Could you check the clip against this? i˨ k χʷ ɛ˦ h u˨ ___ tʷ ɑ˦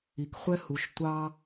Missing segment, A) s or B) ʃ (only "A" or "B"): B